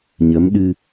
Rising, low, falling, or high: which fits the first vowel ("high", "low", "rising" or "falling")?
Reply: rising